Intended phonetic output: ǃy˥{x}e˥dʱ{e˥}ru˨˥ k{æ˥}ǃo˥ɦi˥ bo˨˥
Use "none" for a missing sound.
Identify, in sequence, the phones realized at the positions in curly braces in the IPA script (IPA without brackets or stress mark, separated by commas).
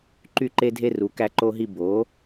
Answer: ǃ, e˥, æ˥